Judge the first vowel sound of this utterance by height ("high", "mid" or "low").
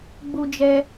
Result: high